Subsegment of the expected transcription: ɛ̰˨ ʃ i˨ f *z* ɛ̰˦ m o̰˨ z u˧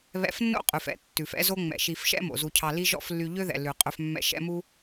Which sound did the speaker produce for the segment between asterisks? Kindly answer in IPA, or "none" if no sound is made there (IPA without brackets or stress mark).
ʃ